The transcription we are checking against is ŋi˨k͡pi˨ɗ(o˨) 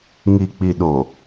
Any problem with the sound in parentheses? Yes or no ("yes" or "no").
no